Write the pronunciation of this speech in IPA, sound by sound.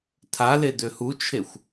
tʰale døhut͡ʃʰexʷ

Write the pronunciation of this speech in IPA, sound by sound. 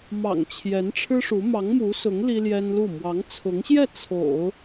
mɑ̰˨˩ŋ t͡ɕʰjɛ˧˥nʈ͡ʂʰɻ̩˥ʂu˧˥ mɑ˧˥ŋmu˧˥sʊ˧˥ŋ li˥ljɛ˥nlu˥˩ mwɑ˧˥ŋt͡sʰʊ˧˥ŋɕjɛ˥˩ t͡sʰo̰˨˩˦ʊ̯

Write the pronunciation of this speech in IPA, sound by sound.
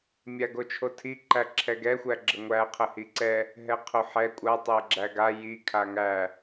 mʲaɡot͡ʃʰotʰi ǃæǁʰɛɡɛ xʷæɡ͡ǁəŋʷæ qʰəhiǀɛ | ɦɛqʰoħɛ kʷʼa tˤæɡ͡ǁæɡa ji kʰaŋæ

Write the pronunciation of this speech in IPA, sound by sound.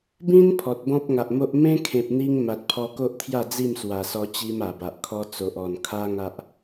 bĩ˦n pʰɔ˨t̚bɔ̃˦p̚ŋa˨ʔmo˦ʔ mẽ˦kʰẽ˨p̚n̪i˧ŋ ma˨t̚pʰɔ˧ko˦ʔt̪ʰja˥˧ d͡zi˥˧mswa˨˩sɔ˧ t͡ɕi˦ma˨˩ba˨ʔkʰɔ˦ t͡so˨ʔɔ˨˩n kʰa˦ŋa˦ʔ

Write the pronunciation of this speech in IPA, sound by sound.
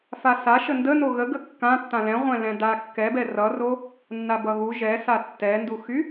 fasaʃə ndə noɣə ɡəkːã tːãlɛ̃ʁʷɛ̃ lɛ̃da kːɛbɛ rʌro | nːabʌɣu ʒɛsa tːɛnduxy

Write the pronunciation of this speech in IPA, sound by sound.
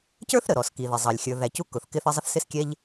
cə˞˦θɾə˩ɾɔ˩ski˩ ðɪ˩zˤɑ˩lʲ xʲə˞˩ ðæ˩cu˦ kʊ˩θkɪ˦θə˦ zˤə˦θsɪ˦skʲɛ˦ʎ

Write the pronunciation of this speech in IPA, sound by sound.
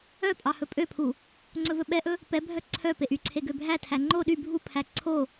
œpʼɑ hɵpʼøpʰu | ŋ͡ǀɵvɵɓɛʔɵ | pɛbʱœ ǀʰœ peʔyǀʰe ɡøbʱætʰæ ŋ͡ǃo ɗy bʱupʰæ ǀʰo

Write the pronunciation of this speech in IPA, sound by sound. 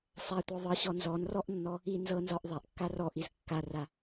sˤatʷɤ ðˤɤɕɔ nzɔnrɔʔnːɔ | i nzɤnzɒʔ ðˤaʔkːa rɔʔiz kːara

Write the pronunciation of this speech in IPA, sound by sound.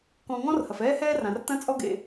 kɔ̃˨ŋɔ̃˦r hɐ˩fɛː˦hɛː˦rã˩r tɐ̃˦t͡sʼɔ˦ɡḛ˨

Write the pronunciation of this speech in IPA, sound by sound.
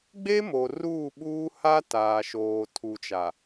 ɡ͡be˦mo˨ ruː˦˨ɓuː˦ ha˦ taː˨ʃoː˨ tʰu˨t͡ʃa˨

